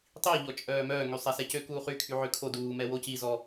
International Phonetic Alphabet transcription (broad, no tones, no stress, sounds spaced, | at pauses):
tˤ i ʎ ɔ t͡ʃʼ œː m œː ŋ y sˤ ɛ s ɛ c ø k uː χ y kʰ y ʕ ø kʰ o d uː m ɛ w o c i z ɔ